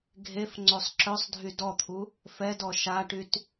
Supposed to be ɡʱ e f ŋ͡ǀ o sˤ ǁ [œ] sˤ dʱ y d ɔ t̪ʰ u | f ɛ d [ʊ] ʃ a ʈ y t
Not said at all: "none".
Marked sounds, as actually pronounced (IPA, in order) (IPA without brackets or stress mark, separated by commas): œ, ɔ